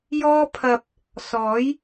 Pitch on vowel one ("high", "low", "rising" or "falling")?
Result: high